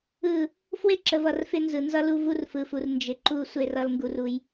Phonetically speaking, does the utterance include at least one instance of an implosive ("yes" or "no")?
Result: no